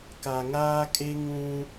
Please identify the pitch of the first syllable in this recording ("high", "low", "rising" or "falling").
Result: low